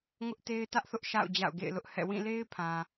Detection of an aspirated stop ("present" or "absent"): present